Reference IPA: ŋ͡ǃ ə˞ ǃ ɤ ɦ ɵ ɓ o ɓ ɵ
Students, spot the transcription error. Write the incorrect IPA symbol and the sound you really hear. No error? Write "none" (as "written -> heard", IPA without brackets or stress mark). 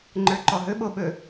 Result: ɤ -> ɔ